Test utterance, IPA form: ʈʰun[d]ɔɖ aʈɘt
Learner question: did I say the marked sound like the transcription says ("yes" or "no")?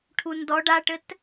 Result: yes